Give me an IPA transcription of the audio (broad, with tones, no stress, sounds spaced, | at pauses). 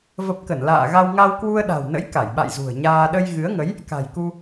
v ə˨˩ p̚ k ə˧˩ n l a̰ː˧˨ ɣ a˧ w ŋ a˧ w k w u˧ ə̯ ɗ a̤˨˩ w n ə̰˧˥ j k a˧˩ j ɓ a̰˧˨ j z ṳ˨˩ ə̯ ɲ aː˧ ɗ ə˧ j ɣ ɨ˨˦ ə̯ ŋ ə˨˦ j | k a̤˨˩ j k u˧